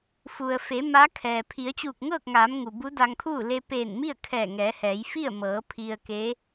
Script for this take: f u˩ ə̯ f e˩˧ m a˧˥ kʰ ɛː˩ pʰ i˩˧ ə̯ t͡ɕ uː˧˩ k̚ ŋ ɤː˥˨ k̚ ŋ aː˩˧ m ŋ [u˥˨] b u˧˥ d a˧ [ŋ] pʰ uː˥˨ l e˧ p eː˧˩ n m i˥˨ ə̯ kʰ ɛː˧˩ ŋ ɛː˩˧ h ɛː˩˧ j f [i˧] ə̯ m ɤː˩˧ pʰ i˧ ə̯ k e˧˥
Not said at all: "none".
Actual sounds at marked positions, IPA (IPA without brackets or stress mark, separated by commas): u˩, ŋ, i˥˨